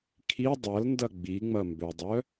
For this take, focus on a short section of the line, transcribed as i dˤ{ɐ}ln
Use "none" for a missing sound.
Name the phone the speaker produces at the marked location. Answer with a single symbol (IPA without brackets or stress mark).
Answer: ɐ